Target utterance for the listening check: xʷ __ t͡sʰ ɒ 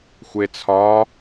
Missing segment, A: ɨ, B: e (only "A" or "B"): B